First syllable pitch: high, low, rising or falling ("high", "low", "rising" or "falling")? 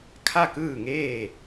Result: falling